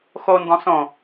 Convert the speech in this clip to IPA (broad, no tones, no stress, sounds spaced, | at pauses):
x o n d ɔ̃ s õ